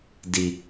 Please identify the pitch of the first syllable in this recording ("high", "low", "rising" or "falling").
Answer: low